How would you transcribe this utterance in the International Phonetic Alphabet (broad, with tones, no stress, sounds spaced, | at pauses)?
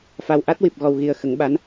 f a˨˩ w ʔ a˦˥ t̚ w i˨˩ p̚ ɣ ɔ˨˩ w ɣ i˨˩ ə̯ x ə˨˩˦ ŋ ɓ a˧˥ n